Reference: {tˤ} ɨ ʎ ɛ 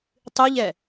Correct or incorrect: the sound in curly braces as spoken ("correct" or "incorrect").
correct